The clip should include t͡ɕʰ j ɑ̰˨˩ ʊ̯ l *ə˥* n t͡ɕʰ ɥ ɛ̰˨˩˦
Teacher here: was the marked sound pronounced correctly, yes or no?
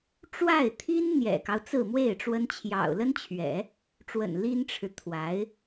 yes